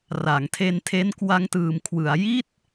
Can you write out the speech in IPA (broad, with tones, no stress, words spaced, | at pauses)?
ra˩˦ŋtʰe˧ntʰe˦˥n kwa˧ŋtɯː˨˩mkʰwɯ˩˦a̯ ji˥˩t̚